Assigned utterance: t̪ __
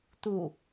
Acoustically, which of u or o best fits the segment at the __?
u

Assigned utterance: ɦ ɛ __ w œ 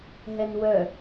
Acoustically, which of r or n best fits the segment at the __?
n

